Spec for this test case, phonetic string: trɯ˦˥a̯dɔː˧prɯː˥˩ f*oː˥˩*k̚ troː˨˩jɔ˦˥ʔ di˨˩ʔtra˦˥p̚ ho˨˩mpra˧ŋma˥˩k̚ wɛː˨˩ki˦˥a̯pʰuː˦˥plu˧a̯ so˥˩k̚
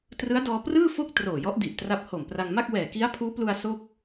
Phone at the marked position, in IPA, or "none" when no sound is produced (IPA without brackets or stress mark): o˥˩